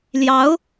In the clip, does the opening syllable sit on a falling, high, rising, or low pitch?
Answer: rising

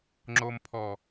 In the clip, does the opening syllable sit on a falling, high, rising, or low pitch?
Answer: low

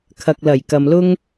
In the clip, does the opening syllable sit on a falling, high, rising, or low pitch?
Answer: low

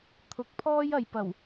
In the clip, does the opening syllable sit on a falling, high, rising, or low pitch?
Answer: rising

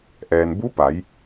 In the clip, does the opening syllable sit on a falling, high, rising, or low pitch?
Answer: low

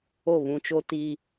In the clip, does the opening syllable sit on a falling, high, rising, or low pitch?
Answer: falling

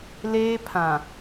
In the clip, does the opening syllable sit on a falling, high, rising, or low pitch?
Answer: high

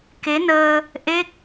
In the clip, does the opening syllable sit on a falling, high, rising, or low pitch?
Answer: rising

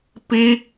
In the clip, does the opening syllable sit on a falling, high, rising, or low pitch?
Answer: falling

